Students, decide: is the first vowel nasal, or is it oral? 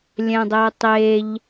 nasal